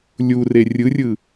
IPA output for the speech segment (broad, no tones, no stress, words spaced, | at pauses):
lʲure rʲɯrʲɯ